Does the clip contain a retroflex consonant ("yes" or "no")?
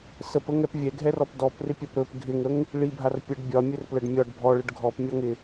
yes